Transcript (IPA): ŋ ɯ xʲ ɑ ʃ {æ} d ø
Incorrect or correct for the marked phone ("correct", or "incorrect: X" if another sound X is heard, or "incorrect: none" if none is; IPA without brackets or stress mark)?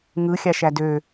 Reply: correct